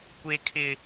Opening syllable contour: high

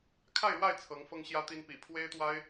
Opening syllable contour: falling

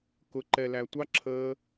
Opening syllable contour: low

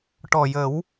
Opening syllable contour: low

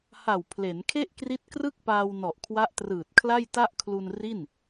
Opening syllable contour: low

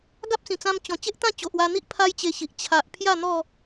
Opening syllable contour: high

